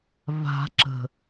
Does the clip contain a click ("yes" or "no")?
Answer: yes